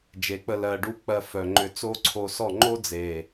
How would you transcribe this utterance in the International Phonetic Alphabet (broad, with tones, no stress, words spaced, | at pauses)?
d͡ʒe˨˦k͡pə˧ lɜ˧ɖu˦ k͡pɜ˧fœ˨ŋ͡ǃʏ˧ t͡so˦ǀʰo˧sɔ˦˨ ŋ͡ǃo˦d͡ze˨